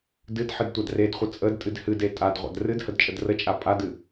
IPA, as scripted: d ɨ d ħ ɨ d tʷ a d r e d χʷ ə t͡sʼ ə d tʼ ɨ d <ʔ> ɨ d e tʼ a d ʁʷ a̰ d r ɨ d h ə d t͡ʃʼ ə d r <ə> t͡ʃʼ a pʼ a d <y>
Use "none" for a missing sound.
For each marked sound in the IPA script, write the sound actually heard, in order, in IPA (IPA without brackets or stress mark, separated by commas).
h, ə, ɨ